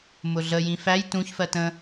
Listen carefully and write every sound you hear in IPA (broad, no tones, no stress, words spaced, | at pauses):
mʊɮəjĩ fæj tũçfɜ tə̃